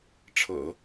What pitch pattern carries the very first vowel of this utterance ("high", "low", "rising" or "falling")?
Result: low